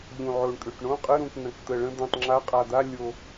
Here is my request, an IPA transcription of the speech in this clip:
ʎ ũ˨˩ ʕ o˨˩ ɳ kʼ ʏ˨˩ ʈ ɳ õ˧˥˧ qʼ ə˧˥˧ ɾ ũ˨˩ k n ə̃˨˩ k t̪ ə˨˩ ɭ ə̃˧˥˧ d̪ ũ˨˩ tˤ ŋ͡ǁ a˧˥˧ qʼ a˨˩ d̪ a˧˥˧ lʲ o˨˩

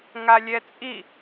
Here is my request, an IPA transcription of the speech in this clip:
ŋ a lʲ ɛ t͡sʼ i

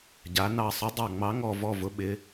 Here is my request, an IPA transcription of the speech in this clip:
ɟ a˩˧ n ɑ˧˩ sˤ ʊ˨˥ dˤ ɑ˧˩ ŋ͡m ɑ˨˥ ŋ ɔ˧˩ v ɔ˧˩ v ʊ˩˧ ɓ ɪ˩˧

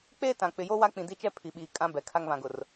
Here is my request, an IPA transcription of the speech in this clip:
k͡p eː˦ t ã˨ k͡p ɪ˨ j o˦ w a˦ k͡p ĩ˨ d i˦ t͡ʃ ɛ˦ pʰ i˨ ɓ iː˨ kʼ ã˦ b ɛ˨ kʰ a˦ ŋ β ã˨ ɡ ʊ˨ r

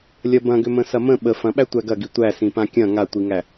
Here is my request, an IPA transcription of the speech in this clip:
lʲ ɐ b ɐ̃ ɡ ʏ m ə̃ s ɐ m ə̃ ɓ ə f ɐ̃ ɓ æ tʷ æ ɡ ɐ ɡ i tʷ æ s ĩ p ã kʲ ɐ̃ ŋ a tʷ i ŋ æ

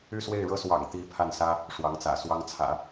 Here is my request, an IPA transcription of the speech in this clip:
y˥˧ s w e˥˩ ɪ̯ ɻ ɤ˥ s w ɑ̰˨˩ ŋ t̪ i˧˥ pʰ a˥˩ n s ä˥ | ʂ w ɑ˧˥ ŋ t͡s ä̰˨˩ s w ɑ˥ ŋ t͡sʰ ä̰˨˩˦

